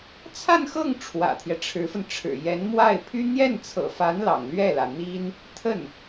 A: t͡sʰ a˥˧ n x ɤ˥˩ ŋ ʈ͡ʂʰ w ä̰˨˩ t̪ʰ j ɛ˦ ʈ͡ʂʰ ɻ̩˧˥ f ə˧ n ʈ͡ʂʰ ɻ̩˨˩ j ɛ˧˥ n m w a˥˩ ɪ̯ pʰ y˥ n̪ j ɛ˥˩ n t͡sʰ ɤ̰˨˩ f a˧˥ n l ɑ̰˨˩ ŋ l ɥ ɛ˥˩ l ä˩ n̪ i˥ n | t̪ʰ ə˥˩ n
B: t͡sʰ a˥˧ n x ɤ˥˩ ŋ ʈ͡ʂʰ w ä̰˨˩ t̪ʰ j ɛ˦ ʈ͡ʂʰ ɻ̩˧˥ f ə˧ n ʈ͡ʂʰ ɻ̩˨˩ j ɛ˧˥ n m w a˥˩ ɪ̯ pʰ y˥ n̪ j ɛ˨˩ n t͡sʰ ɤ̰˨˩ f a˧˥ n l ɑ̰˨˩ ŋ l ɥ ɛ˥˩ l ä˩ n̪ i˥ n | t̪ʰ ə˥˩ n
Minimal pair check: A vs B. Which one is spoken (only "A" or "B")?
A